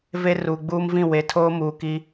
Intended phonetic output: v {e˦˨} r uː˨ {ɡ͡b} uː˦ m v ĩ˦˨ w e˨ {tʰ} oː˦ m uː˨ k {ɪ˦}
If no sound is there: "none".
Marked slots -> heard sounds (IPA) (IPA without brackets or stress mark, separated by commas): e˦, ɡ͡b, tʰ, i˦